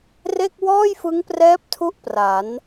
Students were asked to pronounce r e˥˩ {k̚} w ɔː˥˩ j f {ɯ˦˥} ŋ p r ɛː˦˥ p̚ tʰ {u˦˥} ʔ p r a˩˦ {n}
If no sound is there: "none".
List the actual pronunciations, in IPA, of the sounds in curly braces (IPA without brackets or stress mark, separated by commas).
k̚, ɯ˦˥, u˦˥, n